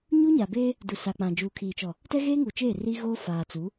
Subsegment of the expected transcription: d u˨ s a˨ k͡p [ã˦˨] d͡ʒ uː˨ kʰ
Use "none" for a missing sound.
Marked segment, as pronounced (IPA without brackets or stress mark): ã˨